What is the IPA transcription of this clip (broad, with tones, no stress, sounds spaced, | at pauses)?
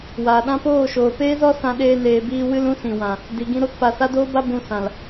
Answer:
w aː˨ ɗ ã˦ p oː˦˨ ʃ oː˨ p eː˦ z ɔ˦ s ã˧ ɗ eː˧ n eː˨ b iː˧ w ɨ˦ l ũ˦ s ĩ˨ w ã˨ | d i˨ ɡ ĩ˧ ɾ o˧ t p a˨ s a˦ d oː˦ b a˦ b ũ˧ s ã˨ l